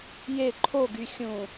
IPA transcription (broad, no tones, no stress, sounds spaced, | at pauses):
j e ǃʰ o ɡ y xʲ ũ